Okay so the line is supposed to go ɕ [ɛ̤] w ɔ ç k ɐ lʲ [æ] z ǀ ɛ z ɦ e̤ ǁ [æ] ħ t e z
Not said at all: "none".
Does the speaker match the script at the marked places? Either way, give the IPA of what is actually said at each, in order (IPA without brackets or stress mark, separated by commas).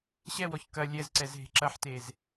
ɛ, ɛ, ɐ